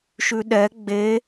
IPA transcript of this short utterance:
ʃʉɗɛ ɡ͡be

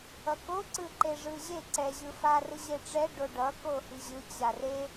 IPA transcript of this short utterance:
ʌkoǀɯ ǃeʐɯʑe ǀɛʑɯ farɯʑeʈ͡ʂɛ ɖoɖʌ kohiʑɯ t͡ɕare

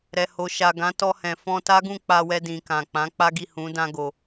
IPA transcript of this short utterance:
ɾɛ˨ho˨ʃa˨ ɡã˨˦ tɔ˧hɛ̃˨fɔ̃˧ta˦ ɡũ˦˨k͡pa˧wɛ˧dĩ˨ kã˨k͡pã˨˦ k͡pa˦ɡi˦˨hũ˨˦ dã˦ ɡo˧

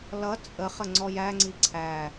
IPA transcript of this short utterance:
lʌ t͡sʼə χəŋ͡ǀɔjæ ŋ͡ǀiǀʰæ

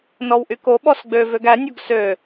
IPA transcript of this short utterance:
nɔwʔyko ɓɔsɡ͡bø vøɡæ nʲoɡsø

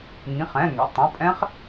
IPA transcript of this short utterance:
ŋĩ˩˧˩χɛ̃˩˧˩ŋɛ̰˩˧˩tˤũ˩˧˩ pʼɛ̃˦˥χ

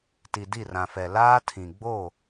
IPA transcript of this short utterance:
ti˨ di˦˨rã˨ fɛ˨laː˦tʰĩ˨ ɡ͡bo˦˨

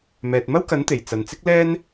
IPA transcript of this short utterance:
mɛː˨t̚mɐ˥wkɐ˨˥nt̪e˨˩j t͡sɐ˨nt͡sɪ˥k̚lɛː˥n

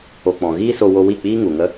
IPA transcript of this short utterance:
o˨k͡pɔ̃˨ ɣiː˦so˧ wo˧wi˦˨k͡piː˦ ŋu˨ŋə˦

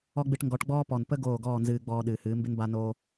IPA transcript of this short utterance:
ɔ˦ɡ͡bɨ˧ʈŋɡɔ˨˦ʈɡ͡bɔː˦ pɔ˨npə˦ ɡoː˦˨ɡɔː˦˨nzɨː˧ɡ͡bɔː˧ ɗɨː˨hɨː˨˦mbɪ˦n ba˧ noː˧

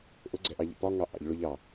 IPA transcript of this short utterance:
ʔʊɡ͡ǀɛʔɑʎḭ pɒŋɑ ʔɑ̰ʎ ɭʊʎɑ

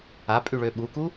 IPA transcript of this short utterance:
apʼyɭø ɓuku

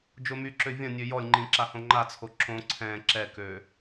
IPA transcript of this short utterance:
d͡ʒomyǁø vʲɐ̃ nʲøjɔlʲŋ͡ǃĩ ǁahõŋ͡ǃat͡sʰo ǁõ ǀʰɛ̃ ǁɛkø

